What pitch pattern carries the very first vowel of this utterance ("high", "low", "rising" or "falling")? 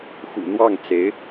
low